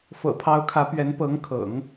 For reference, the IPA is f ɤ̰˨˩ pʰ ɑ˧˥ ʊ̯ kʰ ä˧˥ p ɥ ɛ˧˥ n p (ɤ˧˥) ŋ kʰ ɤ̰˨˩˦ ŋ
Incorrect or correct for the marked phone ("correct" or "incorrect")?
correct